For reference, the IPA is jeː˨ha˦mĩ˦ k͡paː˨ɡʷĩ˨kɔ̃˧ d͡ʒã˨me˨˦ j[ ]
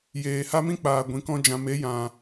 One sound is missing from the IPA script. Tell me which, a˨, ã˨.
ã˨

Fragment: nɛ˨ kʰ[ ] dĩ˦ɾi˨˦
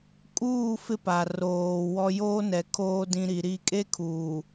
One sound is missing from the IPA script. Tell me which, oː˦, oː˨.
oː˦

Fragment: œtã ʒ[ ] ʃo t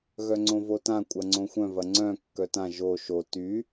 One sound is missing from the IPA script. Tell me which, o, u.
o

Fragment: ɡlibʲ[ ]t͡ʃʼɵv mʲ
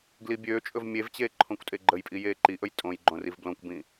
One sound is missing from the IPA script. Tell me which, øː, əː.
øː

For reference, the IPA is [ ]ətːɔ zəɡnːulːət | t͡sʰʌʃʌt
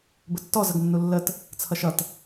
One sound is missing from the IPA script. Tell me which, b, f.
b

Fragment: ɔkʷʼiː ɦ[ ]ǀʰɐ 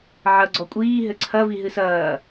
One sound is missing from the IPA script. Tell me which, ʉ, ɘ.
ɘ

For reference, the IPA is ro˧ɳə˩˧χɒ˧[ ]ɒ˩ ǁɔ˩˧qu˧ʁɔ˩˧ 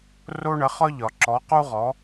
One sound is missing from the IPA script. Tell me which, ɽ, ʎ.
ʎ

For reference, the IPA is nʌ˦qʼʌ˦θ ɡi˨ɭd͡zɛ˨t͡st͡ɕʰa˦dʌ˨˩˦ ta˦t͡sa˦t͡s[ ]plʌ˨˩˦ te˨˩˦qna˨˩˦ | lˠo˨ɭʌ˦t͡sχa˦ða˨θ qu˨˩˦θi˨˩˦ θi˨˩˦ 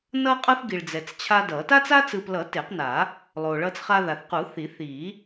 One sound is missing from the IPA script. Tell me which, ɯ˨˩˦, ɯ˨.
ɯ˨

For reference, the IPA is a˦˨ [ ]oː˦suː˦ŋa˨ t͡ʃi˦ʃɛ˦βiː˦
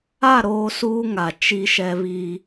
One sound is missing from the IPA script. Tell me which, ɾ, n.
ɾ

